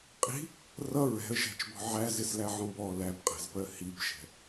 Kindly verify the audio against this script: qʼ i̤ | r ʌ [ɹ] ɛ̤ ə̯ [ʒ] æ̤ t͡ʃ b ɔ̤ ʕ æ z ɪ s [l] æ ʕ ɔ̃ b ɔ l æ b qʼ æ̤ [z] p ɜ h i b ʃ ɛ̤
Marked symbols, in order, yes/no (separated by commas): yes, yes, yes, yes